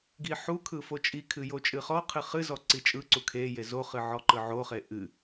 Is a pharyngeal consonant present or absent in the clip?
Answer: present